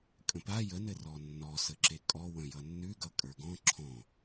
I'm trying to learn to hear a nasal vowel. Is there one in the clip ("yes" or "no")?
yes